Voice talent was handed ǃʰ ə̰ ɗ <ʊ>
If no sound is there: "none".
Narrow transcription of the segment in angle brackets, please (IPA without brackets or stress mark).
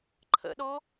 ɔ